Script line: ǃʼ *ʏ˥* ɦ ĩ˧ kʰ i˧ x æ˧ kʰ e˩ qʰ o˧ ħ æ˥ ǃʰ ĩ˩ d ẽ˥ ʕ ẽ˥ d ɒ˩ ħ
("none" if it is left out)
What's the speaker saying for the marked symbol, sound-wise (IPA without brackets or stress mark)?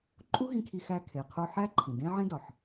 u˥